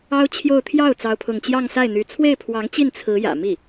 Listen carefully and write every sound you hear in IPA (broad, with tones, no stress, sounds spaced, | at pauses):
ɑ˥ ʊ̯ t͡ɕʰ j o˥˧ ʊ̯ t̪ʰ j ɑ˥˩ ʊ̯ t͡s ɑ˥ ʊ̯ pʰ ʊ˥˧ ŋ t͡ɕ j ɑ˥˧ ŋ s a˥˩ ɪ̯ n̪ y˧˥ t͡sʰ w e˥˩ ɪ̯ pʰ w ɑ˧˥ ŋ t͡ɕ i˥˩ n t͡sʰ ɹ̩˧˥ j ä̰˨˩ m i˥˩